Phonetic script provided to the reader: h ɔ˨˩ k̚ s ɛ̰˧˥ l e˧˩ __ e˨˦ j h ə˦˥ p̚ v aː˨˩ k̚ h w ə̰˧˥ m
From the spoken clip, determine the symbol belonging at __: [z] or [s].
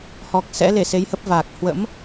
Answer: s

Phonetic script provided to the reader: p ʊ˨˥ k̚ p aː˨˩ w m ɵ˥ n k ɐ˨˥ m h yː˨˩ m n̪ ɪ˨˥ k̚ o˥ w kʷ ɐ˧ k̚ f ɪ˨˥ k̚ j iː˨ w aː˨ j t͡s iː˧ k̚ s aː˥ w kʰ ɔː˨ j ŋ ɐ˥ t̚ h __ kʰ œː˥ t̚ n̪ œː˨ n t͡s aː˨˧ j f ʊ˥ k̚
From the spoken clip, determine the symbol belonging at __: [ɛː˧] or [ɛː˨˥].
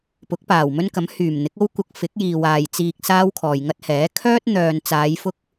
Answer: ɛː˨˥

